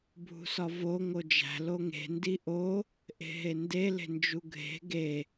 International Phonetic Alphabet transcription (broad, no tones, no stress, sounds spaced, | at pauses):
bʱ ṳ s ɒ v o ŋ o d͡ʒ æ̤ l o ŋ e̤ n d i ʔ o | ʔ e̤ ɦ e n d e l e̤ n d͡ʒ u ɡʱ e̤ ɡ e